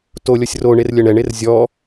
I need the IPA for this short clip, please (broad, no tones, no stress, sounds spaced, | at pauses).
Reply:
t o lʲ ɔ sʲ r o ɳ e r lʲ ɜ ɳ ɛ ɳ e r zʲ ɔ